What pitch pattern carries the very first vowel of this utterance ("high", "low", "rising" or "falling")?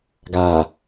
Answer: low